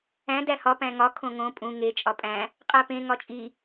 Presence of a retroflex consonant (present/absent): absent